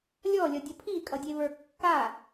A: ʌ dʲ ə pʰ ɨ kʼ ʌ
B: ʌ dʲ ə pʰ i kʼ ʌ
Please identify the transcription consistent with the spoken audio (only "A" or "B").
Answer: B